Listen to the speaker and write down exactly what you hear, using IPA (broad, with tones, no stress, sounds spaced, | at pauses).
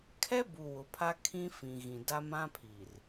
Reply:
kʰ ɛ˦ b u˨ w ʊ˨ pʰ a˦ kʰ ĩ˦ f ĩ˨ ɣ ĩ˨ d a˦ m ã˦ pʰ i˨ r